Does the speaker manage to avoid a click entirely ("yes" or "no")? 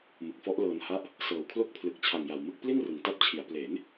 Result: yes